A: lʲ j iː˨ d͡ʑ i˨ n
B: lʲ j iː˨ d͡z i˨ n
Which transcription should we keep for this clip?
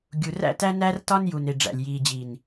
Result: A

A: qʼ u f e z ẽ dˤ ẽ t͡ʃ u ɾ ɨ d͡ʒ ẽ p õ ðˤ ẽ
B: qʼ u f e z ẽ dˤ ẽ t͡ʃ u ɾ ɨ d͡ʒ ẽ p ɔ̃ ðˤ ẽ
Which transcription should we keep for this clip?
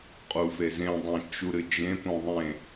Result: A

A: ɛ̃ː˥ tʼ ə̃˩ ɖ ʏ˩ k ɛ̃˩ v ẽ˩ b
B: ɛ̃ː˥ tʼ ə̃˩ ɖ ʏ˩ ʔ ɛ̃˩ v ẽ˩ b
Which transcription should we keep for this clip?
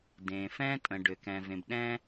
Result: A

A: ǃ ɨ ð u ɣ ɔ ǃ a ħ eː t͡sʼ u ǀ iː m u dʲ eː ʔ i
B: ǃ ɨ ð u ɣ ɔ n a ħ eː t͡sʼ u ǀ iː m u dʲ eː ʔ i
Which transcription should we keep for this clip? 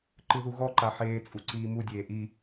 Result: A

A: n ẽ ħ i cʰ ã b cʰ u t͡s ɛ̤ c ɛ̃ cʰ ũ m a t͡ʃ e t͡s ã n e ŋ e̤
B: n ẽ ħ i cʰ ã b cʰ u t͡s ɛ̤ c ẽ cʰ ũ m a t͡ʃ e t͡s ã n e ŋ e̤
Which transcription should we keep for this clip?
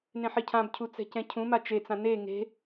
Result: A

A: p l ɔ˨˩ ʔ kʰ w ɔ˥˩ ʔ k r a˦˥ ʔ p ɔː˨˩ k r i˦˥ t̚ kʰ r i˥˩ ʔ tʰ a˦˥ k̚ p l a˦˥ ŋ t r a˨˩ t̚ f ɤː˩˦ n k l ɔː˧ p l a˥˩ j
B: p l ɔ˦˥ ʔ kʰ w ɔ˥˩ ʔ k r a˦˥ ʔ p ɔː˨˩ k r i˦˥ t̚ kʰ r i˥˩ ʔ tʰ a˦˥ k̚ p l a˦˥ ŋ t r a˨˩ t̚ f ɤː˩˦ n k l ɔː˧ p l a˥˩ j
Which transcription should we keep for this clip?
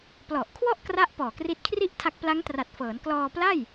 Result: A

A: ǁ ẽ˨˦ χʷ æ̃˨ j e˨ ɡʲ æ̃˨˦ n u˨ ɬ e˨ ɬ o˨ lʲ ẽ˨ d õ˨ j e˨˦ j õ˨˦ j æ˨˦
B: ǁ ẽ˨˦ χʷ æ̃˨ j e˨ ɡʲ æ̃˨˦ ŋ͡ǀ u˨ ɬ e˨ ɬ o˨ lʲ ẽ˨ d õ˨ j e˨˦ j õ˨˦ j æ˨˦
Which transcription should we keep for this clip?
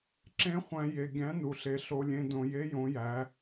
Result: A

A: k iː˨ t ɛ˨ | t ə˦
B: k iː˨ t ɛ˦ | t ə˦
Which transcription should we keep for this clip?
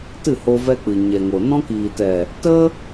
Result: A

